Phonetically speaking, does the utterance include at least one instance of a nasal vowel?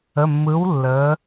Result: no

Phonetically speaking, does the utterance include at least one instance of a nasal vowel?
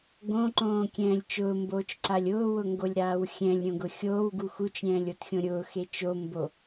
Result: yes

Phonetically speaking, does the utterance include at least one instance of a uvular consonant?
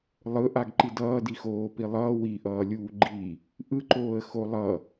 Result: no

